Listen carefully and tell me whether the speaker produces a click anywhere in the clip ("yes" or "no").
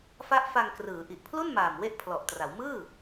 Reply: no